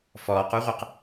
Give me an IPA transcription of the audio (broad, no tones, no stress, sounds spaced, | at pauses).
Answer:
f ɔː q u ʁʷ ɛ q